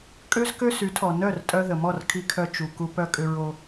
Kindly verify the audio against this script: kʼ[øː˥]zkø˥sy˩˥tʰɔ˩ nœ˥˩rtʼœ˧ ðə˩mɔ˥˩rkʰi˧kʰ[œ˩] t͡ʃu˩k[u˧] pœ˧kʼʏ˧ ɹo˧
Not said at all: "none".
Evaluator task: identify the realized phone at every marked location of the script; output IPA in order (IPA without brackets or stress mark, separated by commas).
ø˥, œ˧, u˧